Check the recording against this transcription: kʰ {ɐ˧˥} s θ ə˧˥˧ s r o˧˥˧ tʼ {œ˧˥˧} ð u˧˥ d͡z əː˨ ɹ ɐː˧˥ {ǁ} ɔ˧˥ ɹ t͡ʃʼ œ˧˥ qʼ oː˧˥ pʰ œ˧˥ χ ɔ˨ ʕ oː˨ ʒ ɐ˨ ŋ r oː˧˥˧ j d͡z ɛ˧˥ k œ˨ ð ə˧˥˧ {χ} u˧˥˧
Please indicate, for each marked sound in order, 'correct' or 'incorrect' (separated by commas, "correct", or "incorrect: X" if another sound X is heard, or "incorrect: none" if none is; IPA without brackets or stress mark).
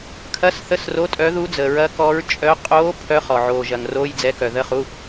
correct, incorrect: œ˧˥, incorrect: k, correct